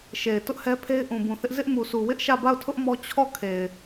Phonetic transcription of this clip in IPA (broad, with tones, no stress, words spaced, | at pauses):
ʃe˨ɪ̯ tʊ˦ʔhɛ˦pʰe˦ɪ̯ ʔũ˨bũ˨θɪ˦ʔ zɪ˦ʔmu˨sʰu˨ wɪ˦ʔʃä˦˨ba˦˨ʊ̯tʰʊ˦ʔ mɔ˦ t͡ɕʰɔ˦˨ kʰe˨ɪ̯